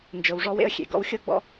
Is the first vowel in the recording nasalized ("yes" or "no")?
no